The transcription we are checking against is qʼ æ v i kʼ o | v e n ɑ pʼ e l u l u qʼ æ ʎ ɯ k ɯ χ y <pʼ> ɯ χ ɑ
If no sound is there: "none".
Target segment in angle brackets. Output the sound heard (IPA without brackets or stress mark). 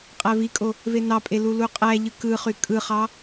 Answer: kʼ